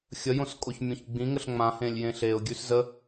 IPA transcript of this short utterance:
xʲəjõskʼoçmʲõç ɡ͡bĩŋəɬ ŋ͡mãhẽlʲjẽ ɬeʊ̯ɡʲʉs zə

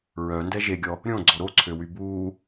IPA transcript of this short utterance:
ɹœndɛ ʒeɡʲɔ | ɾʲõɡ͡ǀɔ ɾoǀʰøwy buː

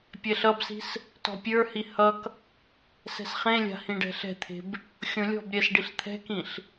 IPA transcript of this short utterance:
pʲɛɬʌbsi̤s | tɔ̤pʲə˞hi hʌk | sɛ̤sχẽlʲa̤ hĩɖɛ̤ɬɛ̤t̪ʰe̤b | xʲõlʲɔ̤bɾʲɛs ɖiɬt̪ʰɛ̤kĩɬ

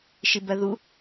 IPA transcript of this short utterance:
ʃibɜðu

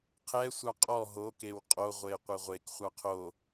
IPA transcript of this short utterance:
qʰɛsʷɑ qʼɔ ɦokew qʼoʁʷe qʷɛʁʷekχʷɑ qʰo

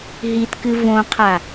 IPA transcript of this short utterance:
ɦitkɨ võqʰa

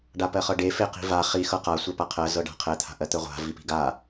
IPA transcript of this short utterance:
ɖapɜχɤɖe feqi̤va χi xɤqa sʷœpaqʰɜ zɤɖa̤qʰɛ t̪ʰa̤ʔɜt̪œʁʷa̤ vipi̤ɡa

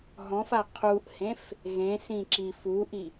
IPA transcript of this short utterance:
ɦɔ̃fa qʰuʔhẽf | ɣẽsĩ ǁi fuʔi

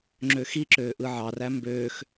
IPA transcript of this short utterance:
ŋ͡ǁøxiǁøː ʔɯʕɑræ mbøːx

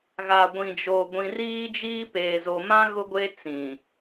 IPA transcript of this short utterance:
ɣa˨ɡʷĩ˨d͡ʒo˨ ɡʷĩ˨ riː˦d͡ʒiː˦ peː˨zo˨mã˦ ɣʊ˦ɡʷe˦ t͡sĩ˨

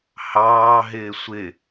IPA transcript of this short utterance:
hɑːɦɪː sʷɪ

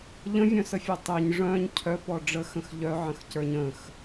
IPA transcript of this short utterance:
ʎə̃vʲœ̃səfʲœ tˤeɲ ʐœ̃ɲ cʰœpɔ ɖ͡ʐəxə̃x ʎœʕə̃xcə˞ɲ ə̃x

